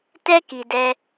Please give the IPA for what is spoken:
t ɛ˦ k i˨ d ɛ˧

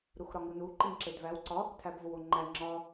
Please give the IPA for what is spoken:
ɾ u x ɾ ɒ ŋ u n u ǃ i ŋ ǁ e d v æ w ǀ ɒ | tʰ æ b v o w o ŋ͡ǃ æ ŋ͡ǁ ɒ

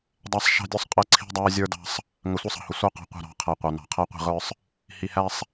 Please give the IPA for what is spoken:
dˤ æ˦ sˤ ʃ ɑ̤˦ dʲ ʊ˦ sˤ qʼ ə˦˨ ǀʰ i̤˦ dˤ æ˦ zʲ ə˞˦ d ɑ̤˦ sˤ | ŋ ə˨ sʷ ə˦ sˤ ɑ̤˨ h ʊ˨ sʷ ɑ˦ q ɑ̤˨ qʷ ə̤˦˨ ɾ ɑ̤˨˦ qʰ æ˨ qʷ ɑ˨ n ɑ̤˨ qʰ æ˦ qʷ i̤˦˨ ʁ ə˞˦ sˤ | h i˨ h æ˦ sˤ

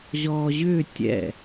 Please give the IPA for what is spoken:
ʑ ɔː ʑ ʏː tʲ ɛ̰

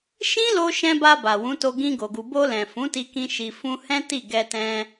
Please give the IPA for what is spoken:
ʃ ĩ˦ l o˧ ʃ ɛ̃˧ b a˧ b a˨ w ũ˨˦ t o˧ ɡ ĩ˧ ɡ o˨ ɡ u˨ b o˧ l ɛ̃˨ f ũ˨˦ t i˧ k ĩ˧ ʃ i˨ f ũ˧ h ɛ̃˦ t i˦˨ ɡ ɛ˧ t ɛ̃˧

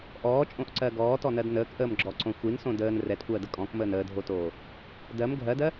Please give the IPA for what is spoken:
ʔ ɔː t͡ʃʼ õ ʔ ǀ ɜ ɡ ɔː t ɔ n ɜ d n əː k ʔ əː m ɡ͡ǁ ɔ ǀ õ xʷ i n s õ d əː n r ɛ t kʷ ɜː d ə kʼ ɔ̃ k m əː n əː dʱ o t oː | d ɜ m ɡʱ ɜ d ɜ

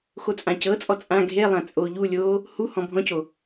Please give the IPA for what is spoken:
x o t͡sʼ ã c ɤ t͡sʼ ɔ t͡sʼ ã ɡʱ e lˠ ã t͡sʼ oː ʎ u lʲ oː | h u h ɔ̃ bʱ ɔ̃ c o

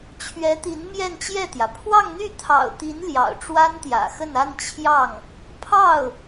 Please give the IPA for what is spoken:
t͡ɕʰ ɥ ɛ˧˥ t̪ i˧˥ n m j ɛ˥˧ n t͡ɕ j ɛ˥˩ t̪ j ä˩ pʰ w ɑ˥˧ ŋ n̪ y˥˩ t̪ʰ ɑ̰˨˩ ʊ̯ t̪ i˧˥ n l j ɑ̰˨˩ ʊ̯ ʈ͡ʂ w a˥ n t̪ j ä̰˨˩ x ə˥˧ n a˥˧ n t͡ɕʰ j ɑ˥˩ ŋ | pʰ ɑ˥˩ ʊ̯

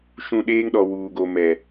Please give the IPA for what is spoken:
ʃ ũ˦˨ ɗ eː˦ ŋ ɗ ɔ˨ w uː˨ ɡ o˨ m ɛ˨

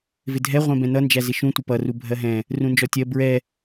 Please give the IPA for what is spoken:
v ɪ dʱ ɛ ʁʷ ɛ̃ b ɛ̃ n ʌ n d͡ʒ æ z ɪ ʃ ũ tʷ ɪ p ʌ r u bʱ ɜ ɦ ɛ̃ | r ũ n d͡ʒ ɔ tʲ ɜ b ɹ ɛ

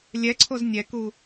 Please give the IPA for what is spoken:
lʲ ɛ ǀʰ o z nʲ ɛ k u

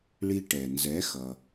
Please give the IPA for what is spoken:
ɭ i˧ ʈ ɛ˩ n z ɛ˩˥ x ʌ˩

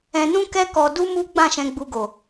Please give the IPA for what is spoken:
ɛ̃˧ n ũ˦ k ɛ˦ k ɔ˧ d u˦ m u˦ ɡ͡b ã˦˨ ʃ ɛ̃˧ ɡ͡b u˧ ɡ o˨

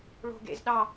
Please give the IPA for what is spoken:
ɭ o̤ ɡ ḛ z ɗ ɑ

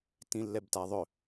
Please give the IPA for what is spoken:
t ĩ lː ɛ b t a ðˤ ɵ

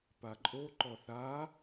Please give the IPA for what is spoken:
p a ǃʼ o ǃ ɔ θ a

